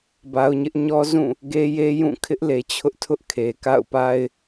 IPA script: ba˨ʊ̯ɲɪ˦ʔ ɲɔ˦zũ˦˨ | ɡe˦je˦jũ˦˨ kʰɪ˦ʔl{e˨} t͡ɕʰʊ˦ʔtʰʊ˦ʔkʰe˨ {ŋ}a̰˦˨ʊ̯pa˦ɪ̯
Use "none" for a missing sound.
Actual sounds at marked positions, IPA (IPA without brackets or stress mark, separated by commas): e˨, k